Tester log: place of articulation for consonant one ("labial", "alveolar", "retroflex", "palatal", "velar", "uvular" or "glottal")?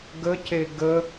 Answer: velar